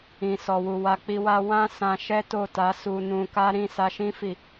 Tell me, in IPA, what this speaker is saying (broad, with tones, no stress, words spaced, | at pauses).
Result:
ĩ˨sɔ˨wu˨ wa˧k͡pi˧wa˦ wã˦ sã˧ʃɛ˦to˦˨ta˨˦ su˧nũ˧ka˦ ɾĩ˦˨sa˧ʃĩ˦ fi˦˨